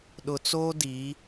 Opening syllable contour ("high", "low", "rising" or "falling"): low